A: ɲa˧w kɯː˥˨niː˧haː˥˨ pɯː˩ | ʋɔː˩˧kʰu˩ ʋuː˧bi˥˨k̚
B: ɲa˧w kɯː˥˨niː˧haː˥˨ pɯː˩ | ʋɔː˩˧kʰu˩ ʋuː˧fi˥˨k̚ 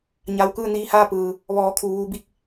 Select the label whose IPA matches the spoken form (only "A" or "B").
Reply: A